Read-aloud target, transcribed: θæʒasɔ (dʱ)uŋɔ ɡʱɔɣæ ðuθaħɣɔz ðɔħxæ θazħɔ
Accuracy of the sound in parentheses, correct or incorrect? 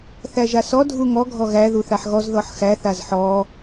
correct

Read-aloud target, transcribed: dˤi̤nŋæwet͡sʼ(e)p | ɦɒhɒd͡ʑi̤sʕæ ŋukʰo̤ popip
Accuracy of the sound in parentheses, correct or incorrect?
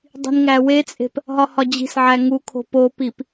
incorrect: e̤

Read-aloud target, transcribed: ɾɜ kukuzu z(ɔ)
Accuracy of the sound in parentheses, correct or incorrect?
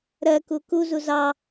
incorrect: ɑ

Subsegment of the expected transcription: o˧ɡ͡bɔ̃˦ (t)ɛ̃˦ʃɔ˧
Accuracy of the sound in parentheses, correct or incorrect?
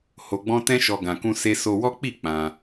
correct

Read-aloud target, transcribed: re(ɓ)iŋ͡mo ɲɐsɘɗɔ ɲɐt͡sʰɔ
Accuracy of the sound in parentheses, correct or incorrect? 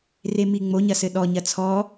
incorrect: m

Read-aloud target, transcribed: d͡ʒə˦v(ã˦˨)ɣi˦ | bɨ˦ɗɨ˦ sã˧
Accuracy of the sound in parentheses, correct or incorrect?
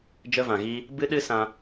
incorrect: ã˨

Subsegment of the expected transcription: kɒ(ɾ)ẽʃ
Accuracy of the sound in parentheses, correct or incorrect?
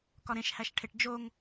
correct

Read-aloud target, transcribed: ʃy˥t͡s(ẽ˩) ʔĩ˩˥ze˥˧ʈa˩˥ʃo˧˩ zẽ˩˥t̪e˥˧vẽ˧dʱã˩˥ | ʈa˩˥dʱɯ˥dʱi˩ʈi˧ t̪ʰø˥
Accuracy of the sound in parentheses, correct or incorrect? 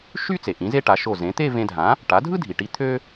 incorrect: e˩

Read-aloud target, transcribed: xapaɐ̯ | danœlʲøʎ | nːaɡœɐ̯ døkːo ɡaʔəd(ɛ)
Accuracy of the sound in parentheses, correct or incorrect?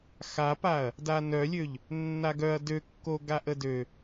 incorrect: ø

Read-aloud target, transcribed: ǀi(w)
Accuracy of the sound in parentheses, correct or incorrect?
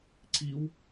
correct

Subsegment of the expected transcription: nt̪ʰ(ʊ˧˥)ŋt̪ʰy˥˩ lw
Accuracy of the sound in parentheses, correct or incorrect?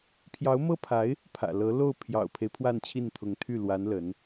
correct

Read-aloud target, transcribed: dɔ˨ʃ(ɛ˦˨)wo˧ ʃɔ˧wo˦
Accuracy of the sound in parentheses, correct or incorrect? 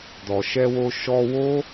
incorrect: ɛ˧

